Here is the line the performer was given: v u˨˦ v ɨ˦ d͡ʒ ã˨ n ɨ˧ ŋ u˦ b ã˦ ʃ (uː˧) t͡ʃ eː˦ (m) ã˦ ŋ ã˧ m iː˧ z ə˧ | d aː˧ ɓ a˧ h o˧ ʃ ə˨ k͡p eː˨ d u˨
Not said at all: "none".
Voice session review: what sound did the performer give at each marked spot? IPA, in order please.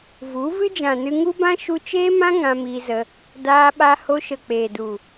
u˧, m

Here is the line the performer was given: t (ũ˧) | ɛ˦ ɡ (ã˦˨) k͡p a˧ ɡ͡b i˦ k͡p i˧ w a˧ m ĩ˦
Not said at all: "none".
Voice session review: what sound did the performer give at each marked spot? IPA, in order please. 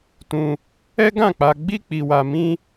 ũ˧, ã˦˨

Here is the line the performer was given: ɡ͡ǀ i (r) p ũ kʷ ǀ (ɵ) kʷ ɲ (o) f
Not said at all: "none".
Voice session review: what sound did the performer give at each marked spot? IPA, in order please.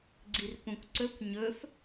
r, ɵ, ɵ

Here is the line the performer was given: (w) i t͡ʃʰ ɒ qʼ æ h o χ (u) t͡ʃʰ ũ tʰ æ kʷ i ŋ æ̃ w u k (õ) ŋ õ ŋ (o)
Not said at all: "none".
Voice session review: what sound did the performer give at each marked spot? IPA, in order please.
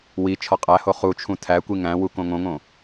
w, u, õ, õ

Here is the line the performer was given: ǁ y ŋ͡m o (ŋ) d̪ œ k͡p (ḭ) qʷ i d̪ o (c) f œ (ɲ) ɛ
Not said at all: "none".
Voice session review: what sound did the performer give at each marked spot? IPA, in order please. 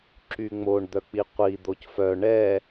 ɳ, i, c, ɳ

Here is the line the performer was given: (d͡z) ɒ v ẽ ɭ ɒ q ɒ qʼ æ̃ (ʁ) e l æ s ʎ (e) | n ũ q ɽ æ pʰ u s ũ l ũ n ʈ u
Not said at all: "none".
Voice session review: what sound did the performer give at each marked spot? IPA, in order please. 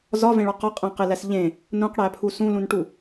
z, q, ẽ

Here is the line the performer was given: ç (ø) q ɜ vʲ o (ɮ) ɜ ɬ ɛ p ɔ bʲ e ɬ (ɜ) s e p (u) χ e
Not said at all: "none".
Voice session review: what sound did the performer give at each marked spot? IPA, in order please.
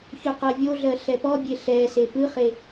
ø, ɮ, ɛ, ɯ

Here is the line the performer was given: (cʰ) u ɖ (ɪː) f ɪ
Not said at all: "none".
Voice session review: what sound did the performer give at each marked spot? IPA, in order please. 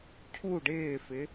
cʰ, ɪː

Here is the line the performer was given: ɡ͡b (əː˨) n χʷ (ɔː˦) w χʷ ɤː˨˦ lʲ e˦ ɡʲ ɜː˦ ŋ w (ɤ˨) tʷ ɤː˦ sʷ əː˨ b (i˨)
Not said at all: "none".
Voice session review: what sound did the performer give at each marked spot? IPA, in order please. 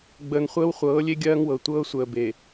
əː˨, əː˦, ɤ˨, e˨

